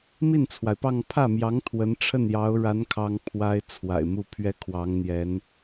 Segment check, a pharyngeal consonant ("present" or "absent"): absent